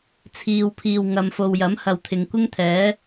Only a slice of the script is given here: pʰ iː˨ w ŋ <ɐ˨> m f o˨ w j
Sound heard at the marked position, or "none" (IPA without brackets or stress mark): ɐ˨